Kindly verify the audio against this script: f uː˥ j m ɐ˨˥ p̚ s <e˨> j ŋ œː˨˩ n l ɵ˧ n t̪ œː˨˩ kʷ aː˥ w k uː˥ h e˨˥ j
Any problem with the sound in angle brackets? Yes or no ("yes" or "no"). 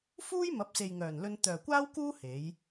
no